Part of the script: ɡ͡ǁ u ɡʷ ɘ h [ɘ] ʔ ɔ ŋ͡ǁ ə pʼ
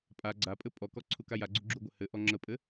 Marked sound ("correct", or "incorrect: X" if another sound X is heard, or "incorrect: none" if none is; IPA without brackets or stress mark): correct